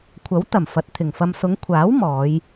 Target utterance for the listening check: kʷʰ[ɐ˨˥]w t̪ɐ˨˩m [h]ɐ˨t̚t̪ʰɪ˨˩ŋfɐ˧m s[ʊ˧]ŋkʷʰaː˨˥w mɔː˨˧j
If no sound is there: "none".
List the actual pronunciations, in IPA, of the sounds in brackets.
ɐ˨˥, f, ʊ˨˧

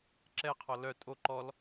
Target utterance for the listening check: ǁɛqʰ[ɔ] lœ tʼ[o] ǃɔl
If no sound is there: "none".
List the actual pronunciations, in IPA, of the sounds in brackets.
ɔ, o

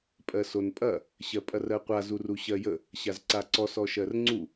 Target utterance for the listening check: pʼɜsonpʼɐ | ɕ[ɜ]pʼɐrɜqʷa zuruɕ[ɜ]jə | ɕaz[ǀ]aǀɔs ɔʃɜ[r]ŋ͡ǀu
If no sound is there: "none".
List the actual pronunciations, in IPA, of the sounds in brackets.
ɜ, ɜ, ǀ, r

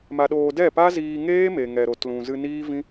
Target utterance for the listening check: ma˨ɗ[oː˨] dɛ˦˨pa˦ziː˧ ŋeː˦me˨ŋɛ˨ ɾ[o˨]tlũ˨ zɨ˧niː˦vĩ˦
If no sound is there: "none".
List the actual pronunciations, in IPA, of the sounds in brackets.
oː˨, o˨

